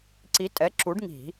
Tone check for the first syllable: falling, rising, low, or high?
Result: rising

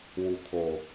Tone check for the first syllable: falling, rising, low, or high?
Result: low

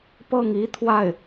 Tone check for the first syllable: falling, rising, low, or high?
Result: falling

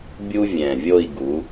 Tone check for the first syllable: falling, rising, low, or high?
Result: high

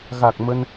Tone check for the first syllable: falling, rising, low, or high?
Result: low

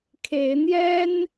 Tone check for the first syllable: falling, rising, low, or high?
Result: rising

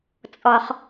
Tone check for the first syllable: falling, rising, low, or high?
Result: low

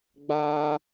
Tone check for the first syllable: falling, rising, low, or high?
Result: high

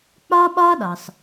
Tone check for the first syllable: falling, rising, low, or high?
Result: high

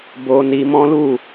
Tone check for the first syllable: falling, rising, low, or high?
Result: high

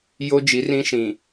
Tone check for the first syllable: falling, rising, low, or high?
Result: high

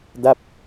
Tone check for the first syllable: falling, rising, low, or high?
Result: falling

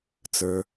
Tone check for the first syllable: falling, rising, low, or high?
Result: low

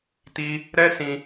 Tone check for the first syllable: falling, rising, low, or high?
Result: high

